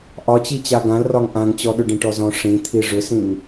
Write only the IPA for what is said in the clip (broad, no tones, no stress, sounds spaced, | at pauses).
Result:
ʔ ɒ t͡ɕ i t͡ɕ a ɡ ã l r ɒ ŋ ʔ ã ŋ t͡ɕ ɔ ɗ ʏ ɖ ĩ ʈ ɔ z ɔ̃ ʂ ĩ t̪ʰ i ʐ ʏ s ĩ ŋ